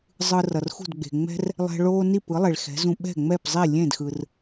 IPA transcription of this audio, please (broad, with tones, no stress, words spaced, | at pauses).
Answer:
zˤɯ˧rʌ˩rxṳ˥˩dɡ͡be̤˩ ŋ͡mɛ̤˥r | lˠɛ̤˧ɭoː˥ ni˥˩pɯ˩˥lˠe˩ɭ xɛ̤˩˥zũ˧ ɓɛ̤˥˩ŋ͡mɛ˥˩pzˤi˥˩ lʲẽ˥˩dxɯ˩r